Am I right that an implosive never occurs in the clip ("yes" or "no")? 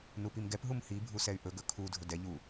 yes